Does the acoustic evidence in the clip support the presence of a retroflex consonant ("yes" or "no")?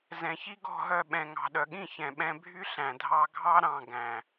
no